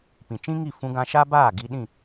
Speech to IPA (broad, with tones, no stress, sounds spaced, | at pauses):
p ĩ˨ t͡ʃ ĩ˦ ŋ i˦˨ f ũ˧ ɡ ã˧ ʃ a˦ b aː˦˨ ɡ i˧ ɗ ĩ˦˨